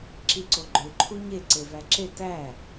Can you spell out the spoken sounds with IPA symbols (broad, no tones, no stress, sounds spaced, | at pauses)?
ǁ i ǀ o ɡ͡ǃ ø ǃʰ u ɲ e ǀ e v æ ǁ e t æ